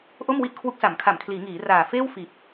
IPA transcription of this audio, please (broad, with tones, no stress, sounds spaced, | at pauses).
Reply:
ʔ o˥˩ m w i˥˩ ʔ kʰ w u˦˥ k̚ s a˩˦ m kʰ a˩˦ m kʰ l iː˩˦ ŋ iː˩˦ r aː˨˩ f eː˥˩ w f iː˨˩ p̚